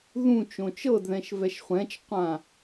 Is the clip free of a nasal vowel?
no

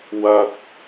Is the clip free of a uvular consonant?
yes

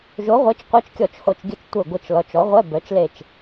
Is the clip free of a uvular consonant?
no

